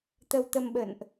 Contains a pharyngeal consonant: no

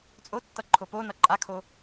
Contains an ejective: yes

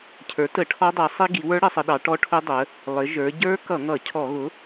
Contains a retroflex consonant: yes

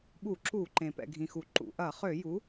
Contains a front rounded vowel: yes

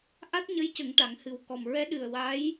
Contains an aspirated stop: no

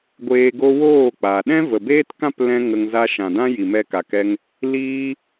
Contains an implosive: yes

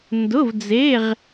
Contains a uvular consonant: yes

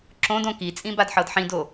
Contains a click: yes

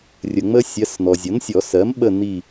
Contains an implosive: yes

